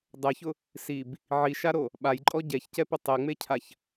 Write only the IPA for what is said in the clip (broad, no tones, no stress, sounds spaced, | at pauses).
dˤ ɛ ç ʊ | s i b | ʕ i ʃ a ɾ o | ɓ a j ǃʼ ɔ ɟ ɛ ç c ɛ p ɪ tˤ e ŋ͡m e cʰ a ç